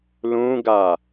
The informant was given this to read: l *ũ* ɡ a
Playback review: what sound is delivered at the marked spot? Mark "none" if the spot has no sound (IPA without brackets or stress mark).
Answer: ũ